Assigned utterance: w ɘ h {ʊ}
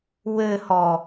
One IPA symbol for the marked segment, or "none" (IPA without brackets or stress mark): ɔ